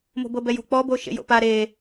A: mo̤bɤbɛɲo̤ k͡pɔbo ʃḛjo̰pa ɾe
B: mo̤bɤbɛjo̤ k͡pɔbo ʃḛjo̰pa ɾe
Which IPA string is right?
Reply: B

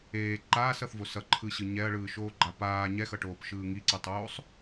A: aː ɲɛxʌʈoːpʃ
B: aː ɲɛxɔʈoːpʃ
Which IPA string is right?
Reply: A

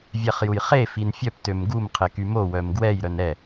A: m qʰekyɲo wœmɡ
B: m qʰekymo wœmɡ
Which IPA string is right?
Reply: B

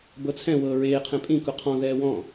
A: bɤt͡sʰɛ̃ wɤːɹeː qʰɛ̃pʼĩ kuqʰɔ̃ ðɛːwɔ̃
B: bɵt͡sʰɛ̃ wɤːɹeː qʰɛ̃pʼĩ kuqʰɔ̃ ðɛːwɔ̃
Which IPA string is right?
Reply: A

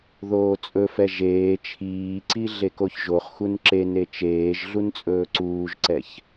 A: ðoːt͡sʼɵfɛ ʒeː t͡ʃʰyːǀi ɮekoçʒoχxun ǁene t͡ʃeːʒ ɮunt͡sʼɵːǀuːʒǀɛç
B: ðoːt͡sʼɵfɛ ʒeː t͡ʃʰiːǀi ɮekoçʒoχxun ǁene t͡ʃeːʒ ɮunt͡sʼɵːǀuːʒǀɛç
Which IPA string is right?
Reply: B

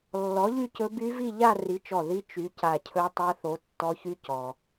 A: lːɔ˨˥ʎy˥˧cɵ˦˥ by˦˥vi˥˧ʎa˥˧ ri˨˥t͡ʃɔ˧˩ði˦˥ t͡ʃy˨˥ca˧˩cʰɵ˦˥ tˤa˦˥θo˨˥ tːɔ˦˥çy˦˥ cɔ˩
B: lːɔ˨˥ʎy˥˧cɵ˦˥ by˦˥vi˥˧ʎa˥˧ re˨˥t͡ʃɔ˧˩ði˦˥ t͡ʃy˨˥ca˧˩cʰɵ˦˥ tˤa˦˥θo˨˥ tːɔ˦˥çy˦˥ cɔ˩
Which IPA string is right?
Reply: A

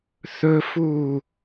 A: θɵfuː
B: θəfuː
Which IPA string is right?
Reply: A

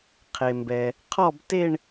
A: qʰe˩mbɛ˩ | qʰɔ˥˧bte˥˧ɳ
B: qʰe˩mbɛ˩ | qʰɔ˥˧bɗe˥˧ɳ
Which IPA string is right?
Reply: A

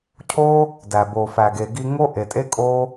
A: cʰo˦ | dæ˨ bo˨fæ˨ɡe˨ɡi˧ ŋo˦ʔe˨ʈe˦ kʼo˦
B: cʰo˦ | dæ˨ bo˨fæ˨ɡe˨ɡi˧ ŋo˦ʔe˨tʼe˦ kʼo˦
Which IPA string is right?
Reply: B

